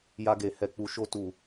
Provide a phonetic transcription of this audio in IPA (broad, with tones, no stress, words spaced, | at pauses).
ja˧ɡe˨ hɛ˨k͡pu˨ʃo˧ tu˨